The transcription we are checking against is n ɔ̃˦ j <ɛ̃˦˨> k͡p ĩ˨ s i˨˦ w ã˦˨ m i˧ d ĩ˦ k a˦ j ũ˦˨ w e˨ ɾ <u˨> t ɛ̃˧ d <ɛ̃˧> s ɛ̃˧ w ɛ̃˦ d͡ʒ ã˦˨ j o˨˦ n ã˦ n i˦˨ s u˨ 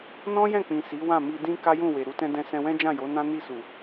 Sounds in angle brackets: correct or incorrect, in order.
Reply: correct, correct, correct

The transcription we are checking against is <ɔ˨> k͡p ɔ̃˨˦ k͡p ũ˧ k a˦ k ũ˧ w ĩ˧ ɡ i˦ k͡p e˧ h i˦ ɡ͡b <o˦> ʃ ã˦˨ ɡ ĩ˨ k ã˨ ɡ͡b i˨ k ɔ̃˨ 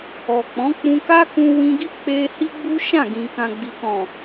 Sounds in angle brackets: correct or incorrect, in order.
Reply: correct, incorrect

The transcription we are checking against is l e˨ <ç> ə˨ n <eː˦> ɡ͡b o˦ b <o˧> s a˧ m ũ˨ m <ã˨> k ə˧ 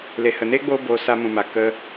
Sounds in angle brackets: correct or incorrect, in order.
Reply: incorrect, correct, correct, incorrect

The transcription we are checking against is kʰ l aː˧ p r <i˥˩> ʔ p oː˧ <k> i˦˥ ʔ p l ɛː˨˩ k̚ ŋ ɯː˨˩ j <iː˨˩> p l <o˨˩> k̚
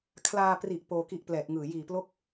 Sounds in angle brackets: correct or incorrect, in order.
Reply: incorrect, correct, correct, incorrect

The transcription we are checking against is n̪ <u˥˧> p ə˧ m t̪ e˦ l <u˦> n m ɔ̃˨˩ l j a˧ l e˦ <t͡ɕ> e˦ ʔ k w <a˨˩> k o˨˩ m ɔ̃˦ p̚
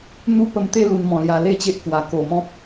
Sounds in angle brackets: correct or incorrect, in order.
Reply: incorrect, incorrect, correct, correct

